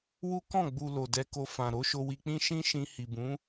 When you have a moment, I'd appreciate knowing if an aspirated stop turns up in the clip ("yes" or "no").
no